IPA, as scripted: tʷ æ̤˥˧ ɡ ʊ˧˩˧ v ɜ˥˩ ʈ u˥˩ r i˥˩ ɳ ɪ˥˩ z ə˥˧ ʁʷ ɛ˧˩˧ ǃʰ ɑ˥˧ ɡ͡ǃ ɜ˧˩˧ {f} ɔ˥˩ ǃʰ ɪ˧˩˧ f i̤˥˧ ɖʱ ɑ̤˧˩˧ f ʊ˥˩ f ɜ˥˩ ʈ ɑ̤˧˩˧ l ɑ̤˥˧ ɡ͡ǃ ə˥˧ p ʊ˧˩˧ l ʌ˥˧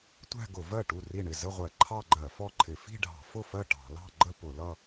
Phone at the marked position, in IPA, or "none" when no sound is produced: f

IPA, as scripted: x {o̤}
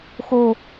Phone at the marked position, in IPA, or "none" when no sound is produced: o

